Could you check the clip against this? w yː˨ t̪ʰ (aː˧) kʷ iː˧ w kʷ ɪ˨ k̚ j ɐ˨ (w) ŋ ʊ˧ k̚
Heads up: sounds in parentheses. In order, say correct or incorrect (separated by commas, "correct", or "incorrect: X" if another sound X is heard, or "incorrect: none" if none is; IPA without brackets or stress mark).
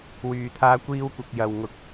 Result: correct, correct